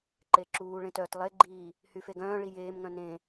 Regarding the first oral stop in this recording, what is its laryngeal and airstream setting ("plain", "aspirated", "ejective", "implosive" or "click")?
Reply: click